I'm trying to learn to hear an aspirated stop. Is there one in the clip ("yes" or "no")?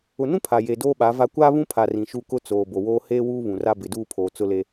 yes